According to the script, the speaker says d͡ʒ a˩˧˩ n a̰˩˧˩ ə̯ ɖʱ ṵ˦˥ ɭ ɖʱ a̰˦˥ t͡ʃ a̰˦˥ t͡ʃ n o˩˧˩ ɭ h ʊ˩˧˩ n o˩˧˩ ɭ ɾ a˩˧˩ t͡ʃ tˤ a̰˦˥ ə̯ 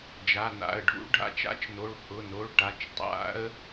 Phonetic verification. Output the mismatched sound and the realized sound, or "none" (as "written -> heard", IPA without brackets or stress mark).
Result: ɾ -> ʈ